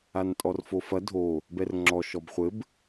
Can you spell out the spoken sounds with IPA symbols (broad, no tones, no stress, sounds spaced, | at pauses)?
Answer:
a n tʼ ɔ r f o f ɐ dʱ o | b ɛ r ŋ͡ǁ ɔ ʃ ɔ b χʷ ɘ b